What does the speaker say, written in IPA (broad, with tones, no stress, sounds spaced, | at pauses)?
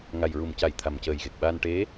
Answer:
ŋ a˨˩ j ɹ u˨˩ m c a˨˩˦ j t̪ʰ a˨˩ m c əː˨˩ j ɣ e˨˩ k̚ ɓ a˧ n ʈ e˧˥